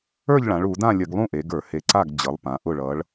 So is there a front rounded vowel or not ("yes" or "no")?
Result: no